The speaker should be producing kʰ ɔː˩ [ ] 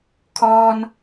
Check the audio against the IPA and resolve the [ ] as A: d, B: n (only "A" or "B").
B